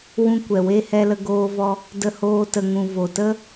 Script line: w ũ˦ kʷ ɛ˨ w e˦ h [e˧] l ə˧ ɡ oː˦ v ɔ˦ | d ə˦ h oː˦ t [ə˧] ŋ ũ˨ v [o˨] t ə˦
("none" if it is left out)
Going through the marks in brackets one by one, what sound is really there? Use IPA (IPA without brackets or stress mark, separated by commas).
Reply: ɛ˧, ə˧, o˨